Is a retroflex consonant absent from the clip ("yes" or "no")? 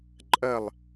yes